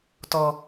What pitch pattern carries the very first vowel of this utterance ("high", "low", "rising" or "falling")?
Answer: low